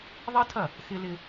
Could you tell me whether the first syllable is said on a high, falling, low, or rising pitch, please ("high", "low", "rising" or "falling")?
high